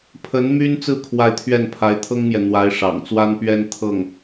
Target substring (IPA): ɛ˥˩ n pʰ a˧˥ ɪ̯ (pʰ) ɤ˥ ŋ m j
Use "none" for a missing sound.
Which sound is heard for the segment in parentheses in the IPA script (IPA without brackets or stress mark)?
t̪ʰ